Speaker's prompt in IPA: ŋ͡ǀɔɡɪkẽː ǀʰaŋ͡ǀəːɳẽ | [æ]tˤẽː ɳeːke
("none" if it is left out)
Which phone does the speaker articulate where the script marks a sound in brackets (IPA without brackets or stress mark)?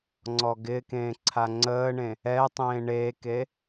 ɛ